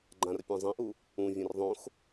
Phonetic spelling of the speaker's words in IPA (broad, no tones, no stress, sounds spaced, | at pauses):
ɡ͡ǃ ã r pʲ ã zˤ ĩ ʔ u | ũ vʲ ẽ r ðˤ õ x